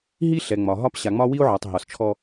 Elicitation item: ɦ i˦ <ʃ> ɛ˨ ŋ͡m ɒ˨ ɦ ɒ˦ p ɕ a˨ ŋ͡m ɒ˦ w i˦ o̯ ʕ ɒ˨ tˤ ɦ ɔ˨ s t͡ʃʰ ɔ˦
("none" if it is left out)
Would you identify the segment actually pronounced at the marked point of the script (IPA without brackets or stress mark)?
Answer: ɬ